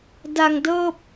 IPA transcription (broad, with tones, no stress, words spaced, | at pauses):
da˧ŋ dɤː˥˩p̚